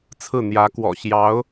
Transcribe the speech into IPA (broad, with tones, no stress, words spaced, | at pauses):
t͡sʰɹ̩˥˩n̪jä˧˥kwɔ̰˨˩ ɕjɑ˧˥ʊ̯